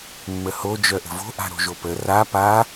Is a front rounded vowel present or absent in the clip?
present